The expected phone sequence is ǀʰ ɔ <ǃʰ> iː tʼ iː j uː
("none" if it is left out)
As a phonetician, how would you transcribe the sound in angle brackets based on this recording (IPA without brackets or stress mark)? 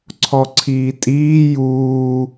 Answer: ǀʰ